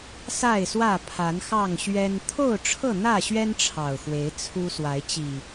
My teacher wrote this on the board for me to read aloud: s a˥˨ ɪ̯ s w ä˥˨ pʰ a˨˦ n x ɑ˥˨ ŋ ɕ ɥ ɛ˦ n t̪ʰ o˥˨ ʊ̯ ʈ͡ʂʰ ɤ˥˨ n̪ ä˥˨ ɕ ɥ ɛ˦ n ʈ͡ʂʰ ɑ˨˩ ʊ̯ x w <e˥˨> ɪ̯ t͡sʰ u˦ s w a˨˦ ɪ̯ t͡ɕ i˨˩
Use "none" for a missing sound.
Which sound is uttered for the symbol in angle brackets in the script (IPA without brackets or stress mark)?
e˨˦